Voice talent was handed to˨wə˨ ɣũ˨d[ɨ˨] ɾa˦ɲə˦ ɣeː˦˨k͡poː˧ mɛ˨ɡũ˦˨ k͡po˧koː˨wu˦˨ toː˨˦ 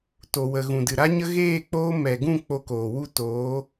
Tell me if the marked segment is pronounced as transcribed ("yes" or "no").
yes